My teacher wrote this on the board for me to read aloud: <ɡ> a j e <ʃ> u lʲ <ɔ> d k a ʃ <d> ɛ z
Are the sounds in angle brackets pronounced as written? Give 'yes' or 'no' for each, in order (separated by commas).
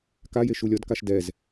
no, yes, yes, yes